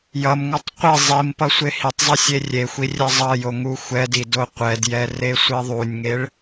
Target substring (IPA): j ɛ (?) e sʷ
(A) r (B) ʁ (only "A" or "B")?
A